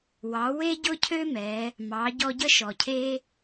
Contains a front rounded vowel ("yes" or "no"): yes